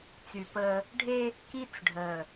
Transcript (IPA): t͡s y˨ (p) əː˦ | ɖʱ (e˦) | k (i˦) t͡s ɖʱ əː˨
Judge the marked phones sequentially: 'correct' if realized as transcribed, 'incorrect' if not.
correct, correct, correct

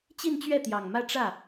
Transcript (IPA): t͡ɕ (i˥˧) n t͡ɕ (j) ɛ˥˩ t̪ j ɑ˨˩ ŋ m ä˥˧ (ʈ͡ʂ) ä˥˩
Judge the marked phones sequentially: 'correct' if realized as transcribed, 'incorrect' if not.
correct, incorrect: ɥ, correct

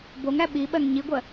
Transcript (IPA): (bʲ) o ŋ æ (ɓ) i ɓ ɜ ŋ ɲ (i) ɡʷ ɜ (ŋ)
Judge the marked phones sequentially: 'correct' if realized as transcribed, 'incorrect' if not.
incorrect: b, correct, correct, incorrect: none

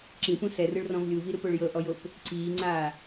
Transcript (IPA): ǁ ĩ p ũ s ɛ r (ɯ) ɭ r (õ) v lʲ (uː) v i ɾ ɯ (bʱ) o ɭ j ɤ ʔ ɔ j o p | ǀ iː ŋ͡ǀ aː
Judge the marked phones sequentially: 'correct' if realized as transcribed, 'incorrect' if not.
correct, incorrect: ɔ̃, incorrect: u, incorrect: p

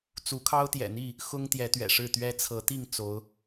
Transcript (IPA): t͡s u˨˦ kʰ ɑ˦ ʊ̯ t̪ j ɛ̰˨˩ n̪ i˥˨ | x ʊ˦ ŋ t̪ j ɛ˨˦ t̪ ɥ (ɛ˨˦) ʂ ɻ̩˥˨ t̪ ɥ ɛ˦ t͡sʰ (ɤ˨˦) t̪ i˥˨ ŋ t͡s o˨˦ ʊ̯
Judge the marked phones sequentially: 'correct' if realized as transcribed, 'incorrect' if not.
incorrect: ɛ̰˨˩, correct

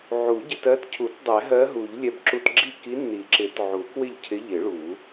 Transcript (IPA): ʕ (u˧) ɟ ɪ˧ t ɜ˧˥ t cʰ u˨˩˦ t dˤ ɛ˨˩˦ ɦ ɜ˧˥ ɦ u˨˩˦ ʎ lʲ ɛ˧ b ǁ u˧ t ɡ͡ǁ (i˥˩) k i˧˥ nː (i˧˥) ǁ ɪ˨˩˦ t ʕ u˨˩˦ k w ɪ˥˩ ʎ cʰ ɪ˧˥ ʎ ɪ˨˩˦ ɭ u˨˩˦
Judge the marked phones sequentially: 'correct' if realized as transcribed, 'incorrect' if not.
incorrect: u˨˩˦, correct, incorrect: i˨˩˦

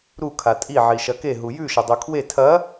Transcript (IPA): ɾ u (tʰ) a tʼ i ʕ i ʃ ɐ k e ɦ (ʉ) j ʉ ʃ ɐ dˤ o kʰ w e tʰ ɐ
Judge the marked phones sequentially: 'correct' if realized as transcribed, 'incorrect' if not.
incorrect: kʰ, incorrect: u

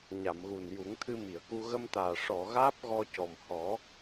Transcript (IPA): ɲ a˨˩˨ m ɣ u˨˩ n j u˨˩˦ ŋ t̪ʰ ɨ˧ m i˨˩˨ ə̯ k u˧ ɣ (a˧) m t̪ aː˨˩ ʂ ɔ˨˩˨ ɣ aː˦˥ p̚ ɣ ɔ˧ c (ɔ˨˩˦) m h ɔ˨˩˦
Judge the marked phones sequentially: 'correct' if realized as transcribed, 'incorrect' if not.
incorrect: ə˧, incorrect: ɔ˨˩

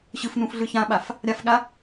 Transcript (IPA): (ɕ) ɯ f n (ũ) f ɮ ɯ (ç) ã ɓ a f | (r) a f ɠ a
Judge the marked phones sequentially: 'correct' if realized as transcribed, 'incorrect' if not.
correct, correct, correct, incorrect: ɾʲ

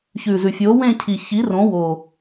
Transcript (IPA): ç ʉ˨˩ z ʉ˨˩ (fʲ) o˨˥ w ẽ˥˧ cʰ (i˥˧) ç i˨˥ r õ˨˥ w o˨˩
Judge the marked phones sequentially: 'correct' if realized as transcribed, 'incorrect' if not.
correct, incorrect: i˨˩

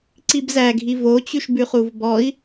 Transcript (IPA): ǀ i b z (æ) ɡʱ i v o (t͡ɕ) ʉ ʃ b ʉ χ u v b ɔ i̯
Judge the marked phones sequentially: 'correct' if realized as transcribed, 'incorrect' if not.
correct, correct

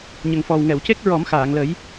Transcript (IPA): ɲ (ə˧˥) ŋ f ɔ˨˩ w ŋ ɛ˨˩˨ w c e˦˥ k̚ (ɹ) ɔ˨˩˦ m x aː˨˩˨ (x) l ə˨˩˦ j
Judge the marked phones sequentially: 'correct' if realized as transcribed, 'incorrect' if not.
incorrect: ə˨˩, correct, incorrect: ŋ

